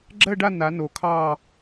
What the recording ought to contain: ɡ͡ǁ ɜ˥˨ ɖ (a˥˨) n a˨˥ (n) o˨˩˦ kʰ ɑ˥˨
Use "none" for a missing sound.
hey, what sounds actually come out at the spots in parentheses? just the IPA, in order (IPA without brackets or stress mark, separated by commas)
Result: a˥˨, n